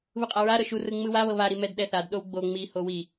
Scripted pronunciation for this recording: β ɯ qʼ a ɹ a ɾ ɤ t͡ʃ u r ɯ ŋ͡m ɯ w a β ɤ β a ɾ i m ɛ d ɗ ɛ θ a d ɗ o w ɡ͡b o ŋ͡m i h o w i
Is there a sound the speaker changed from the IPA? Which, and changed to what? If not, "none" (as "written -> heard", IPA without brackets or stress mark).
t͡ʃ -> ʃ